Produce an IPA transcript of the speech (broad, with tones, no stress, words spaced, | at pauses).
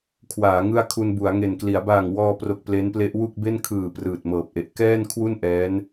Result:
kʰwaː˩˦ ŋɯ˥˩a̯ kʰu˧nbu˩˦a̯ ŋe˨˩nkli˩˦a̯ baː˨˩ŋwɔː˧pro˨˩k̚ ple˦˥nple˦˥ʔ wu˥˩k̚be˥˩n kʰɯː˨˩ prɯː˨˩t̚mɤː˨˩p̚ʔe˨˩ʔ kɛː˥˩nkʰwu˥˩n ʔɛː˦˥n